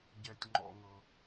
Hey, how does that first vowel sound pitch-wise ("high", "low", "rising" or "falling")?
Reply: low